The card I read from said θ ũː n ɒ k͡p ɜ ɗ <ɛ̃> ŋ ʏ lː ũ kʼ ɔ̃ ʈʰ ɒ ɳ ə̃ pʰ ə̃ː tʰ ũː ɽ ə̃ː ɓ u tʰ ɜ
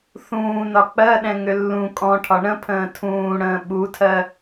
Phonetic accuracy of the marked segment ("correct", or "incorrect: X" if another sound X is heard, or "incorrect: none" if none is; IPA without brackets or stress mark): correct